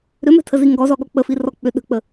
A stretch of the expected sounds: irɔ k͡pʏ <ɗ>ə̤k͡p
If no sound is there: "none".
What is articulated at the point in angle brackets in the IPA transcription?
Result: ɗ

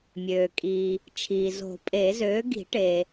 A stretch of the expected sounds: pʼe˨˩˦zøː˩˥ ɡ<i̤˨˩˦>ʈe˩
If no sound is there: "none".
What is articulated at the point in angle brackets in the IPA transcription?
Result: i̤˨˩˦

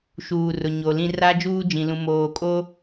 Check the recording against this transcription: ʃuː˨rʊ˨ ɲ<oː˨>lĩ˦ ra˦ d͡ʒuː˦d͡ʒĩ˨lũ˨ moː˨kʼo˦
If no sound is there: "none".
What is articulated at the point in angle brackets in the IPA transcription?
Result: o˨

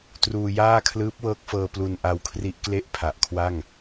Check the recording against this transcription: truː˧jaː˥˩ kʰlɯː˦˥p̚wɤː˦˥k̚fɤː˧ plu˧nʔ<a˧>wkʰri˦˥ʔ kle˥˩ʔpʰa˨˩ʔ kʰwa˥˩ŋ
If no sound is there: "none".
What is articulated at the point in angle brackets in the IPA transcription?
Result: a˧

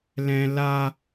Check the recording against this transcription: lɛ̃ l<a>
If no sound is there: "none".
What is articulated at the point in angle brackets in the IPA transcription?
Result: a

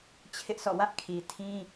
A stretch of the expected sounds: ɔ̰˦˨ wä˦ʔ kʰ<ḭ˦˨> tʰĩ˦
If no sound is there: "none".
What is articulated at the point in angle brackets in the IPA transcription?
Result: i˨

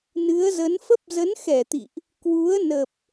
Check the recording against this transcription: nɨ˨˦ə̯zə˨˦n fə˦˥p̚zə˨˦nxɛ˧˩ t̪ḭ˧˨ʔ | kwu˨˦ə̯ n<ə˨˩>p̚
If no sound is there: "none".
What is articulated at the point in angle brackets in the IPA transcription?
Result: ə˨˩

